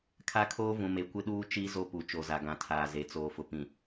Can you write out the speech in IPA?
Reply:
kʰ a˦ kʰ oː˦ v ũ˨ m e˨ kʷ ɪ˦ ɗ uː˦ t͡ʃ i˦ z o˦ p u˨ t͡ʃ o˨ z a˨ ɡ ã˨ tʰ aː˨ z e˨ t͡s oː˨ f ʊ˨ p ĩ˨

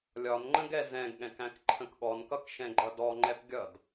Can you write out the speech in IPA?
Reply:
lʲ ɒ n ŋ͡ǃ ə̃ ɡ ɛ z ɛ̃ ɡ ɠ ɛ̃ k æ̃ k ǃʰ ə̃ k ɠ ɔ n k ʌ k ʃ ɛ̃ ɡ͡ǃ ʌ d ɔ ŋ͡ǃ ɛ p ɡʲ ʌ d

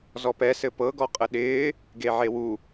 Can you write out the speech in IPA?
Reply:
z ɔ p ɛ s ɘ p ɤ ɡ ɔ qʼ ə ɗ ɪː | ɡ e ʕ e w u

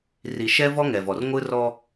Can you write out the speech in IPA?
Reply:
r i˨ ʃ ɛ˦ v ɔ˦ ŋ ɛ˨ v ɔ˨ r ŋʷ ɯ˦ r ɔ˦

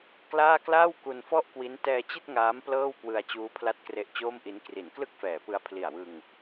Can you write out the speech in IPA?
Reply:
k l aː˥˩ k l aː˥˩ w k u˧ n f ɔ˥˩ ʔ k w i˦˥ n t ɛː˧ t͡ɕ i˥˩ t̚ ŋ aː˦˥ m p l ɤː˥˩ w k w ɯ˧ a̯ t͡ɕ uː˦˥ pʰ l a˥˩ t̚ k r e˦˥ ʔ t͡ɕ oː˥˩ m ʔ i˦˥ n k r i˩˦ n k l ɯ˥˩ k̚ f ɛː˩˦ p ɯ˧ a̯ pʰ l i˨˩ a̯ w ɯ˧ ŋ

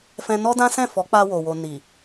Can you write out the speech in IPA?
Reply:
f ɛ̃˧ n ɔ˦ d ã˦ s ɛ̃˦˨ f ɔ˨˦ k͡p a˧ w o˨ w o˨ n i˨

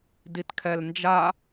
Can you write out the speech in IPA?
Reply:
d i t kʰ ɛ l n d͡ʒ a

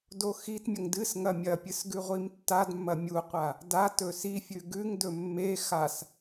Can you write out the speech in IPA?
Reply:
d o x i t mʲ ɐ ŋ d ɨ s ŋ ɐ mʲ ɐ pʲ ɨ s ɡ ʉ ʁʷ i m tː a d mː ɐ mʲ u qʷ a | d a t ɵ s i fʲ ʉ ɡ ʉ ŋ d ɵ mː e x a s

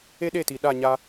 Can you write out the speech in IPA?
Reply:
e˦ ɗ e˦˨ t i˨ ɗ a˦˨ ɲ a˦

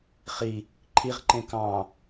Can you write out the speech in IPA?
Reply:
χ i | ǃʰ i ʁ ǃ ẽ k ɑ̃

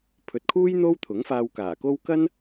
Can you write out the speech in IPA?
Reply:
pʰ ɵ˨ t̚ kʰ uː˥ j n̪ o˥ w t̪ʰ ʊ˨˥ ŋ f aː˧ w k aː˨˩ k o˥ w k ɐ˥ n

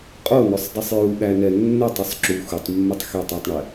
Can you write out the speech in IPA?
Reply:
qʼ o n o sˤ dˤ i sˤ j u ɠ æ n ɛ nː ɛ tˤ o sˤ ǁ u x u tˤ mː ɘ tˤ x e tˤ æ tˤ ɳ ɛ

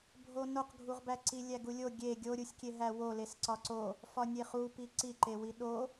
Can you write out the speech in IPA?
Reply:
bʱ o n o q ɡʱ u ʁ b æ ǀ i lʲ æ ɡ u lʲ o ɡʲ e ɡʲ o ɾʲ u sʲ kʲ e ɦ æ w o l e s ǀ ɒ ǀ o | f ɒ nʲ e χ u p i ǀ i ǃ e w i ɗ o

